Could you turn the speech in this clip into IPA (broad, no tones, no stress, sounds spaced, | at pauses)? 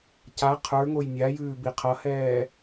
c a qʰ ə˞ ŋ o j nʲ a j ʉː b i qʰ ʌ h ɛː